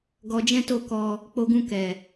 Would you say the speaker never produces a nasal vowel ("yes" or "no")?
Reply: no